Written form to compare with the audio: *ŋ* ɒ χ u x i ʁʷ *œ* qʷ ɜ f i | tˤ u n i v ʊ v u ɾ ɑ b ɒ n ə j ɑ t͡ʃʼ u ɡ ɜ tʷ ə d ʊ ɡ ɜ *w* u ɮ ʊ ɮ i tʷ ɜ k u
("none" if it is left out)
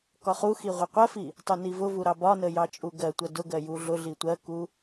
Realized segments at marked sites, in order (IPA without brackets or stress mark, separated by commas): k, ə, j